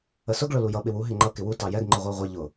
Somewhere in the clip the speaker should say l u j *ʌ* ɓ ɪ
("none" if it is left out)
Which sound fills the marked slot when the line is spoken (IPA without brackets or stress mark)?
ʌ